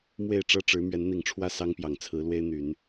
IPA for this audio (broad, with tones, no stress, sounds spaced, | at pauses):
m w e˥˨ ɪ̯ ʈ͡ʂ ɤ˦ ʈ͡ʂ ɻ̩˨˦ m ɥ ɛ˨˦ n n̪ i˨˩ ŋ ʈ͡ʂʰ w ä˥˨ s ɑ˦ ŋ p j ɑ˨˩ ŋ t͡sʰ ɹ̩˨˦ l w e˦ ɪ̯ n̪ y˨˦ n